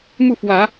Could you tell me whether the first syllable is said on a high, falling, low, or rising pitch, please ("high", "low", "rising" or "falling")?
falling